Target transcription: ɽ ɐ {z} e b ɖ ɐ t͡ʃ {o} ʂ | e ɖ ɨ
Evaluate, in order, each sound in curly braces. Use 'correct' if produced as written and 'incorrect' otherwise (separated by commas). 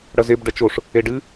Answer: correct, correct